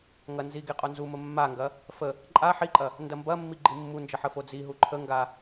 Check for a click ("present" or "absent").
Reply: present